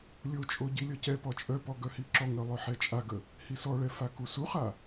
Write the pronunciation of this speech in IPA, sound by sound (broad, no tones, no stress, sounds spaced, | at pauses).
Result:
lʲ o t͡ʃʼ o ɟ i lʲ ɔ c ɛ p ɔ t͡ʃʼ œ p ɔ ɡ œ h i ǁ ɔ ŋ œ lˠ œ ħ ɛ t͡ʃʼ a ɡ ə | h i s ɔ ɭ ɛ f a k u s u χ a